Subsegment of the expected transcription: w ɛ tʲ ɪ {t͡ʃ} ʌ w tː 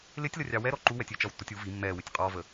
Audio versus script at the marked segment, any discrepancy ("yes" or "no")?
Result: no